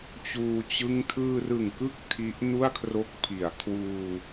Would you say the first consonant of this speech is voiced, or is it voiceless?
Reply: voiceless